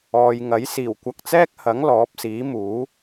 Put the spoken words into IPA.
ɔː˨jŋɐ˨˥j siː˨˩wkʷɐ˧k̚t͡sɛː˥k̚hɐ˨˥ŋ lɔː˨˥p̚siː˨˥muː˨˥

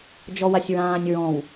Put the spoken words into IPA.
d͡ʒɔwasʲɹãːnʲ ɹɔ̃w

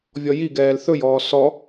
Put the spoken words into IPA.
vʲɔjiɡɛːl θɵjɔː sɔ

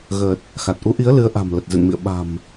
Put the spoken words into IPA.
ɣəː˨˩t̚ | xa˨˩t̚ʔu˨˦ʔi˨˦ə̯ lɨ˨˦ə̯ʔa̤˨˩m lə˨˩t̚zɨ̰˧˨nmḭ˧˨ə̯ ɓa̤˨˩m

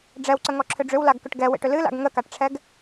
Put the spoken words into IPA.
ɖ͡ʐɛwǀəŋɔǁʰʏ ɖ͡ʐʏwlaɡkʏʈ ɡɛwḛʈʏ lɨla̰ɡ ŋəkaʈʈ͡ʂʰɛɡ

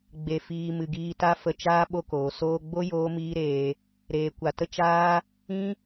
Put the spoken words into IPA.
ɡ͡be˨fiː˨ mɨ˨ɡiː˧ta˦ fə˧t͡ʃaː˦ ɓo˦koː˨ soː˧ɡ͡bo˦ joː˦miː˦ɾeː˧ | ɾeː˨ kʷa˨tə˦ t͡ʃaː˦ | ĩ˦

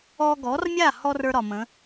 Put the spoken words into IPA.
ɔ˧ɡɔ˩˥rmʲa˥˩hɔ˧r ə˞˥ɾɒ˩mə̃˩˥

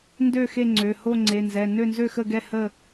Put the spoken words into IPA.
ndø˥˨xe˥˨ ŋ͡ǀø˩˧˩ho˥˨ ŋ͡ǀe˩˧˩nzɛ˩˧˩ nø˥˨nzø˥˨xə˥˨ɡɛ˥˨ hə˥˨

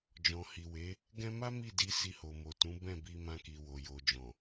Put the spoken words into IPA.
d͡ʒɔ̃˨hi˨we˨˦ | ɡɛ̃˦ ma˦ mi˦˨di˧ si˧ho˨mo˨tũ˨˦ bɛ̃˦˨bi˧mã˧ki˨ wo˨jo˨d͡ʒɔ̃˨

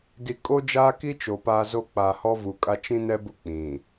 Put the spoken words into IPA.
di˨ kʼo˦d͡ʒaː˦ki˦ t͡ʃo˨paː˦zo˦ k͡pa˨ hɔ˦vu˨kʼa˦ t͡ʃĩ˦nɛ˦bʊ˦ k͡pĩ˨

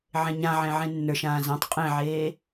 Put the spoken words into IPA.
ʕẽɲãʕẽ ʕẽnːə˞ʃ ãːzãtˤ qʼẽʕeː

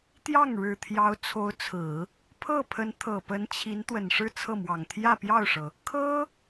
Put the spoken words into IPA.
t̪jɑ˥˩ŋɻɻ̩˨˩t̪ʰjɑ˧˥ʊ̯ t͡sʰo˧˥ʊ̯t͡sʰɹ̩˨˩˦ | pʰɤ˥˩pʰə˧˥n t̪ʰɤ˨˩pə˧˥nt͡ɕʰi˧˥n t̪wə˨˩nʂɻ̩˥˧t͡sʰɤ˥˩mwɑ˨˩ŋ t̪ʰjä˥˧pjɑ˥˩ʊ̯ʂɤ˩ | kʰɤ˥

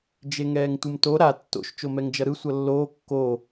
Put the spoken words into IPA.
d͡ʒeŋɛːŋtʷɯmto ɾa tːo̰ʃ t͡ʃomɛŋd͡ʒʌɾɯ sʷʌlːoː kːo

